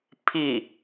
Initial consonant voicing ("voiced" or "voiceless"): voiceless